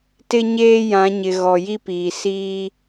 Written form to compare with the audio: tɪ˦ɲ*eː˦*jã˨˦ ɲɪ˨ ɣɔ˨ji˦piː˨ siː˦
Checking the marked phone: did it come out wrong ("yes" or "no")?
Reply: no